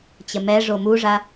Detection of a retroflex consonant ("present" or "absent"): present